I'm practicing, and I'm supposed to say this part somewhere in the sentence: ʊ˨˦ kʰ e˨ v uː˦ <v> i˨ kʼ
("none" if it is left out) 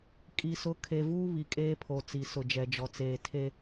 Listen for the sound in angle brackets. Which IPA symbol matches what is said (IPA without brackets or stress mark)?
β